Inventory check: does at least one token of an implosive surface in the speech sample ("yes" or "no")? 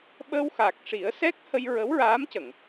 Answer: yes